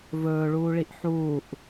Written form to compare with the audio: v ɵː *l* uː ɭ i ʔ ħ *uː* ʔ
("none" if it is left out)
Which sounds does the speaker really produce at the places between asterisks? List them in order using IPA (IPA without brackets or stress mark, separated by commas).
ɭ, uː